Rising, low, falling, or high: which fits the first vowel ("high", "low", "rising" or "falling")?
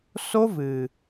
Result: high